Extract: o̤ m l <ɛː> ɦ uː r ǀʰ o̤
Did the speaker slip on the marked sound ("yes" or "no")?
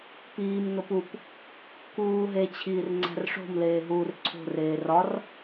yes